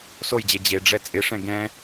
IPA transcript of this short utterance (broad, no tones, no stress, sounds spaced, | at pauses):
s o j d͡ʑ e d͡ʑ e ɖ͡ʐ ɛ t͡sʼ ɪ ʂ ɛ̃ ɡ ɛ̃